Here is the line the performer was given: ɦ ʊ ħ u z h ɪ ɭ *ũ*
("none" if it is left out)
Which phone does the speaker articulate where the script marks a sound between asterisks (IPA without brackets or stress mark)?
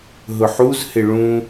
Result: ũ